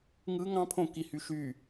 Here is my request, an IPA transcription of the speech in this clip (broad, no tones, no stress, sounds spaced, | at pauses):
ŋ ɯ ŋ ɑ̃ pʰ õ k i h y ʃ y